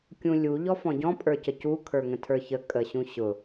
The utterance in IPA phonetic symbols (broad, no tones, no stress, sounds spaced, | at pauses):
kʲ ũ lʲ u ʎ ɔ f ɔ̃ ɟ ɔ̃ pʼ ə˞ c ə c u kʰ ə˞ ŋ ə̃ tʰ ə˞ ç ə kʼ ə ɕ ũ ɕ ʊ